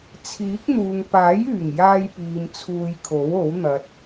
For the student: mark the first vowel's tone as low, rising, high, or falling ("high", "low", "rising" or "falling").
rising